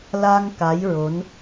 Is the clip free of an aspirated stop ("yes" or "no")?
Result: yes